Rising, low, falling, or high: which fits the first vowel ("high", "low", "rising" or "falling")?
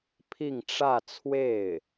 falling